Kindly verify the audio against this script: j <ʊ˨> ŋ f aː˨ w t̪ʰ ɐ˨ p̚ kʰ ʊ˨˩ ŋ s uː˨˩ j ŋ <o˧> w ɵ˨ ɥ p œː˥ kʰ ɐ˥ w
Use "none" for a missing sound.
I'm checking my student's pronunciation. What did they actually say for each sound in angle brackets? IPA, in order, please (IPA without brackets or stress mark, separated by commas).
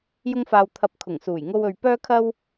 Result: ʊ˧, o˧